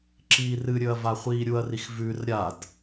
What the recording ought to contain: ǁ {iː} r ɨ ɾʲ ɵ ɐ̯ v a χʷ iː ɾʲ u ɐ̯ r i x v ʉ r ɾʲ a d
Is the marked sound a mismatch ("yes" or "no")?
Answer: no